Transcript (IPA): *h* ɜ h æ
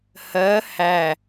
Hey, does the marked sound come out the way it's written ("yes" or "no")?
yes